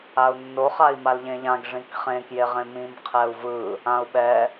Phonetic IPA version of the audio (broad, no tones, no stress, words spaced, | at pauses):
au̯nːo χai̯malʎẽʎãɡ ʐĩkχẽ kjeʁẽmĩm qʰɛu̯vɯ | ãu̯ɓɛ